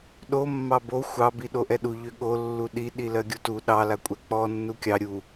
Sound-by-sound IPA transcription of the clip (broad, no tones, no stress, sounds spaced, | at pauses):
ɗ o mː ɑ b o xʷ ɑ b i ɗ o ʔ ɛ ɗ u ʎ ø ɠ o lː u ɗ i ɗ i l ɜ ɡʲ u t u ɗ ɑ l a kʷʼ ɛ k͡p ɔ nː u kʲ ɑ ɾʲ u